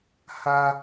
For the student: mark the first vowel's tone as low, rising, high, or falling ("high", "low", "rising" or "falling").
high